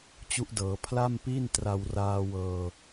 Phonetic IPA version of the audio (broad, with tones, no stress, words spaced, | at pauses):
t͡ɕu˦˥ʔdɤː˩˦ pʰla˥˩mpiː˥˩ntra˧w raː˧ wɤː˧